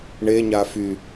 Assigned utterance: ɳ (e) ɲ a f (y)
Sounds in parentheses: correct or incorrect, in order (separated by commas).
correct, correct